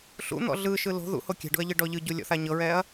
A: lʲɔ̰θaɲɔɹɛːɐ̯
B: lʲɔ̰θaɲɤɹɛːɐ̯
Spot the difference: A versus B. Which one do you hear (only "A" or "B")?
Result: B